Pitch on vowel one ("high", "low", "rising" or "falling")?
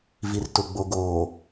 low